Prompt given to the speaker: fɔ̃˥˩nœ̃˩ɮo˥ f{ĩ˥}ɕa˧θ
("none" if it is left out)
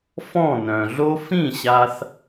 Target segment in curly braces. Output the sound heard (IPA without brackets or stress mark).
ĩ˥˩